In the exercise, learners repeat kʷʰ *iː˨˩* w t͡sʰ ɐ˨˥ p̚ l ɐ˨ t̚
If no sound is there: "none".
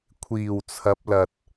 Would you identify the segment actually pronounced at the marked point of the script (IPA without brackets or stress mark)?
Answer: iː˨˩